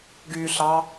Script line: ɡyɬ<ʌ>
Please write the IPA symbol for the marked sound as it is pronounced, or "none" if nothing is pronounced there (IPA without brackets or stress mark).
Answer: ɑ